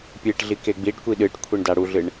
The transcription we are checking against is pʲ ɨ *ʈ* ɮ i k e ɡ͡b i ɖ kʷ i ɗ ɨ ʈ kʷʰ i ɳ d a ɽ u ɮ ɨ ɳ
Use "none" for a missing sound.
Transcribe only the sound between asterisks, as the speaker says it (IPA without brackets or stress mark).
ʈ